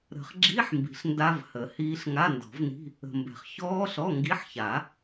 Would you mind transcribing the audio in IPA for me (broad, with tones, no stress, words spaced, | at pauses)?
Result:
ɾə̤˨˩˦χɡ͡ǁi˧˥˧ħmbi̤˨ɬ nda˦˥vhə˨˩˦hiː˦˥ɬ ŋa˧˥˧ndɔ̤˨˩˦vni̤˧˥˧ | ə̤˨mbɛ̤˨χ çɔː˦˥ɬɔ˧˥˧ ŋɡi˧˥˧ħça˨˩˦